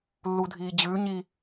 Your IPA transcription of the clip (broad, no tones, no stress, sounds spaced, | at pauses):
lː u dʱ iː d͡ʑ ʉ ɲ i